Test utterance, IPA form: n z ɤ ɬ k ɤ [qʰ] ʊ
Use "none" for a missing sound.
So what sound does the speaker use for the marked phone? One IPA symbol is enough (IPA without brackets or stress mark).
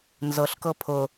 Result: pʰ